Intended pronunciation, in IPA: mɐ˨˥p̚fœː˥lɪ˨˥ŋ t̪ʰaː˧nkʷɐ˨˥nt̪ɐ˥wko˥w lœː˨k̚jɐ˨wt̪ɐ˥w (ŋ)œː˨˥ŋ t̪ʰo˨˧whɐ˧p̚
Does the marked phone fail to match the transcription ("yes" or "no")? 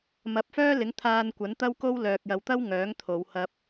no